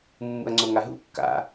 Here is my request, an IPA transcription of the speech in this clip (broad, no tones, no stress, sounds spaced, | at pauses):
mː ṵ ɐ̯ ŋ͡ǀ o ŋ a ɦ ṵ kː a̰